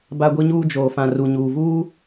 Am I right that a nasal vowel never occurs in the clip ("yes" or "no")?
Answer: no